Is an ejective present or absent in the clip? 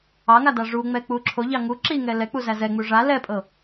present